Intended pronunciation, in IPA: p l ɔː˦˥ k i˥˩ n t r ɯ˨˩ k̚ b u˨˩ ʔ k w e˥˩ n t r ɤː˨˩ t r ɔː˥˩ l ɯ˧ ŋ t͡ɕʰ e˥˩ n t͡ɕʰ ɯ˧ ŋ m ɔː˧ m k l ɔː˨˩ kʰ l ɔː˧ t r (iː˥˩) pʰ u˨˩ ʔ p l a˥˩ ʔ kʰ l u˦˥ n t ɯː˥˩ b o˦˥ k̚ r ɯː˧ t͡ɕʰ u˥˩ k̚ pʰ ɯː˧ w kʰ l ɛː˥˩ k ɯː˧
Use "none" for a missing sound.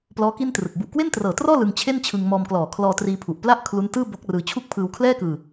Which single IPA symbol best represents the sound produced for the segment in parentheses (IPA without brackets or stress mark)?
iː˧